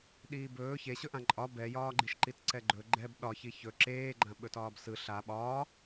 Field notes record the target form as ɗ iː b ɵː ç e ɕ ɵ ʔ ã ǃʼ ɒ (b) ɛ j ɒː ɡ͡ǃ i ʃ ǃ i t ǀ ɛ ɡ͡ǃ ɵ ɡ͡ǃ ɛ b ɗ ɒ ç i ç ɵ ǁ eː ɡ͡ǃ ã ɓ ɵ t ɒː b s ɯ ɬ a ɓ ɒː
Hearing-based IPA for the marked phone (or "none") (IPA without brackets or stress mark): b